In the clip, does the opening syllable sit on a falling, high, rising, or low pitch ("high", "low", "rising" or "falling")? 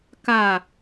falling